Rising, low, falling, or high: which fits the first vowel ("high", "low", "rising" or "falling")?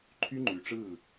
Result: high